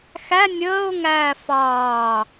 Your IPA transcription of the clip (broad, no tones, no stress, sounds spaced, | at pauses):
x æ nʲ əː ʊ̯ ŋ æː f ɑː